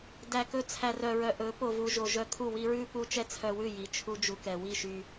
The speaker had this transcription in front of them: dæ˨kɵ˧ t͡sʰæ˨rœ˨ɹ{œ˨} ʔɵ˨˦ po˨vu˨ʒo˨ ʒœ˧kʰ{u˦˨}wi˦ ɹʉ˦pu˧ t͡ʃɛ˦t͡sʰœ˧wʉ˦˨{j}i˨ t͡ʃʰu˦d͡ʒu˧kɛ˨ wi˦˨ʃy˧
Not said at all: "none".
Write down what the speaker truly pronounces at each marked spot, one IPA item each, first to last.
œ˨, u˦˨, j

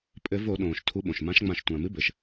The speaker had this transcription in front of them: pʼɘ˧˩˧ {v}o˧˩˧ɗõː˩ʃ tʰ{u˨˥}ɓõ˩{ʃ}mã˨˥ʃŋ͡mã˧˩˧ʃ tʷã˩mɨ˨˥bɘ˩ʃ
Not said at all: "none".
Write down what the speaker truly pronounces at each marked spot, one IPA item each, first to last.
v, u˨˥, ʃ

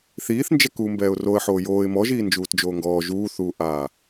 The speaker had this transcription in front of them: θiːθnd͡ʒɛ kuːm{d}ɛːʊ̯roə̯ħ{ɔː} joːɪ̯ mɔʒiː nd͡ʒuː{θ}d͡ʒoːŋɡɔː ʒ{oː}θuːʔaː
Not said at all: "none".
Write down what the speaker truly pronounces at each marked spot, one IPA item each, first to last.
b, oː, t, uː

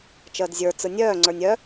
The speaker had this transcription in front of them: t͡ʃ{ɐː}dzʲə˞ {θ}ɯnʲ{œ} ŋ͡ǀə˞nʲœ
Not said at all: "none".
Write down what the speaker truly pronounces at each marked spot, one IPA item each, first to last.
əː, t͡s, œː

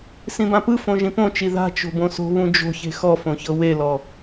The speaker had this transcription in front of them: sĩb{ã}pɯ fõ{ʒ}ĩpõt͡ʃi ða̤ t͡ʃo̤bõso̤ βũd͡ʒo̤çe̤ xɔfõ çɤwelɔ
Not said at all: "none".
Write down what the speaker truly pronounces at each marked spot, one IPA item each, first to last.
ã, ʒ

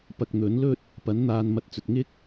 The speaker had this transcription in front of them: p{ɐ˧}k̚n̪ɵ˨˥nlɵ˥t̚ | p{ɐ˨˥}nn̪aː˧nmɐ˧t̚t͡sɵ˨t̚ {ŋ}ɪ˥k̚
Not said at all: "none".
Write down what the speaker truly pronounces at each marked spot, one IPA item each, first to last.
ɐ˧, ɐ˨˥, ŋ

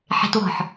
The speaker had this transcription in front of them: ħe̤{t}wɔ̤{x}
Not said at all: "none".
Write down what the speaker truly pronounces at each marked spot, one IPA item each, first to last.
t, ħ

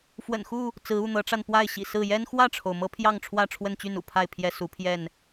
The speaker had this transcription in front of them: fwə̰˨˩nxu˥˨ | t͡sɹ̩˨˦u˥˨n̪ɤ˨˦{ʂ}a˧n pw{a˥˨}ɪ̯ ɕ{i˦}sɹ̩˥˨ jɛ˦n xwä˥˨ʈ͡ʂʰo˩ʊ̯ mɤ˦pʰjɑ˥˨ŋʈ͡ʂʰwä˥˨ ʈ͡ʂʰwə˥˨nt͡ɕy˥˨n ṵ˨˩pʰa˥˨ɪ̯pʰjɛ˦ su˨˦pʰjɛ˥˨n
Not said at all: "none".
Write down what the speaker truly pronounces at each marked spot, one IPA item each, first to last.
ʈ͡ʂ, a˥˨, ḭ˨˩

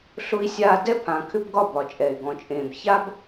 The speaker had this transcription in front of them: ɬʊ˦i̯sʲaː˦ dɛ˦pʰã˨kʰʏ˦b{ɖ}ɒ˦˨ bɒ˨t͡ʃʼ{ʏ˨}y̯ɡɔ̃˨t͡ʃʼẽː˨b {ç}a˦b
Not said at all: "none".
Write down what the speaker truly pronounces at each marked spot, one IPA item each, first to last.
ɡ, ɛ˨, ç

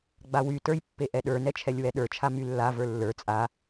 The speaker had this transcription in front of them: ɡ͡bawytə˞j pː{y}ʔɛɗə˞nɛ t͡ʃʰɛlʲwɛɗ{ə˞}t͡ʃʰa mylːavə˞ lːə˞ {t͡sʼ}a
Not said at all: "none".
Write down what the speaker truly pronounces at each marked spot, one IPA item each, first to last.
e, ə˞, t͡sʼ

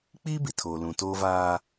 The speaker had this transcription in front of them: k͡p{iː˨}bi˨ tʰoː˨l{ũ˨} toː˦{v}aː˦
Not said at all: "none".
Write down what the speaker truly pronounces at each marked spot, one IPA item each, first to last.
iː˦, ũ˨, v

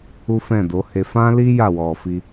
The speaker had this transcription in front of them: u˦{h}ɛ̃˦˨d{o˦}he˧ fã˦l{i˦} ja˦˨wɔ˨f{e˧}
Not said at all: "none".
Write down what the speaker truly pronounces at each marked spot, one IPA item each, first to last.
f, o˨˦, i˦, i˧

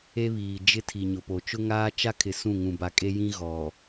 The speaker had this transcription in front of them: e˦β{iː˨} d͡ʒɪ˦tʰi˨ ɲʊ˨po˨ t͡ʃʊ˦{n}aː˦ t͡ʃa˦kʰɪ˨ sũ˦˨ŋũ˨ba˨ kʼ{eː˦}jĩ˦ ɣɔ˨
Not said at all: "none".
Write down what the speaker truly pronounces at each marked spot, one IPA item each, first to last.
iː˨, ŋ, e˦

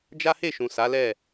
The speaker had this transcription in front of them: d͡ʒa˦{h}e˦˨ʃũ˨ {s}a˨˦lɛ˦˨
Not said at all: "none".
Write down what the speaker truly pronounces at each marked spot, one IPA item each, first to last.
h, s

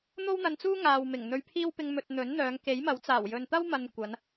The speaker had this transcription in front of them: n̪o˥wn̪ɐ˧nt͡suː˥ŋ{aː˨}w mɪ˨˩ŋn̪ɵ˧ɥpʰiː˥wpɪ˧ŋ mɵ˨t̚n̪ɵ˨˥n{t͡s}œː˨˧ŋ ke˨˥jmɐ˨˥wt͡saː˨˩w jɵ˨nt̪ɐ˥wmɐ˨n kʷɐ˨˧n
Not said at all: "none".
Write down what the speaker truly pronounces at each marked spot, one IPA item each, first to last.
aː˨, n̪

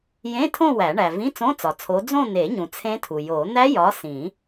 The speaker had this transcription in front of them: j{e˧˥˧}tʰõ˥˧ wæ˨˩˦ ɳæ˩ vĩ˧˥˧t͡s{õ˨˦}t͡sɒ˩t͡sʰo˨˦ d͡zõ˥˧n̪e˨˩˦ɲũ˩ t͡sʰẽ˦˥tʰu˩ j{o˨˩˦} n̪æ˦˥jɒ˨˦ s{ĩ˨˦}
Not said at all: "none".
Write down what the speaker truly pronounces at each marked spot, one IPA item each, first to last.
ẽ˧˥˧, õ˧˥˧, o˨˩˦, ĩ˨˩˦

